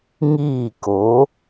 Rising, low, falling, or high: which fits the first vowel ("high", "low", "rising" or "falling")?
falling